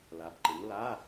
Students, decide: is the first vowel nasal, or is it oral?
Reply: oral